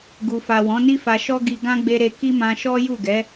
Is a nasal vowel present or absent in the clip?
present